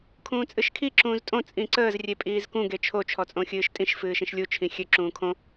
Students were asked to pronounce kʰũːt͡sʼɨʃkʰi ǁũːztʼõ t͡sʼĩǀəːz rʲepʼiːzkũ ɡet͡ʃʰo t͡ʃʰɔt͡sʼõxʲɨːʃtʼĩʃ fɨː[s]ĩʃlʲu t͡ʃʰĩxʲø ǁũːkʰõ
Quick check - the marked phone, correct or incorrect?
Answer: incorrect